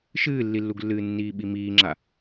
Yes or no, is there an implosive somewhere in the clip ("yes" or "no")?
yes